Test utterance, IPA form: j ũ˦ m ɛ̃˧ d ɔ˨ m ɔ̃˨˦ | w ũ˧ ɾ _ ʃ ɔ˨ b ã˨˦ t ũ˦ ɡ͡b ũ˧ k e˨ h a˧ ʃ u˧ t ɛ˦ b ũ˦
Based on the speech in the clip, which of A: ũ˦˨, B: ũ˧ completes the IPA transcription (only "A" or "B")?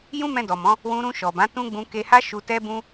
B